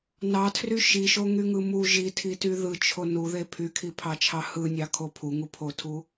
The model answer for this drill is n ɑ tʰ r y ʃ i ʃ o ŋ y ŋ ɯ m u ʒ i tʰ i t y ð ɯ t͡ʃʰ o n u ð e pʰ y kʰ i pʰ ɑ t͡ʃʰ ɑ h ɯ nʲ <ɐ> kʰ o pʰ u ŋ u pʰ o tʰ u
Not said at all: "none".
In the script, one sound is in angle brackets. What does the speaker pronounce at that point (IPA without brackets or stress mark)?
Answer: ɑ